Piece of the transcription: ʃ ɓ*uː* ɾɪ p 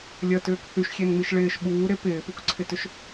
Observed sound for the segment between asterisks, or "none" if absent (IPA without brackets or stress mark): uː